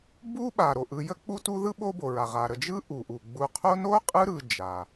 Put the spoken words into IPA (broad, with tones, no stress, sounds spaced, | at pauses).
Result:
b u˦ ɓ a˩ ɾ o˩ ʔ ɯ˨ j ə˥ k͡p u˦ t u˦ ð ɯ˥ ɓ o˦ b o˩ ɹ a˩ ʁ a˩ ɾ ə˨ d͡ʒ ɯ˦ ʔ u˩ ʔ u˩ ɡ͡b u˨ qʰ o˦ n o˥ qʼ ɯ˦ ɾ ɯ˨ d͡ʒ a˩